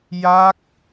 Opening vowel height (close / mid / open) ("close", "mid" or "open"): open